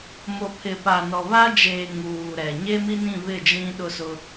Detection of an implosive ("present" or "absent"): present